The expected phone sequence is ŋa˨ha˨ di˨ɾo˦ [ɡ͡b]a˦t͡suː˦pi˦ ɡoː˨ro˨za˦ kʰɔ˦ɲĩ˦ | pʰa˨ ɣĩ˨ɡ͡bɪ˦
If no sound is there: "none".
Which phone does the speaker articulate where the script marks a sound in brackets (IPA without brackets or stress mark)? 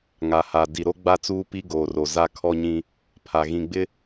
ɡ͡b